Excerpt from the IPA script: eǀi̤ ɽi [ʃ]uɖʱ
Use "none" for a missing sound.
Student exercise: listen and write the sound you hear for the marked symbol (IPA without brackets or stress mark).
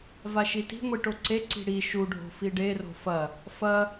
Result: ʃ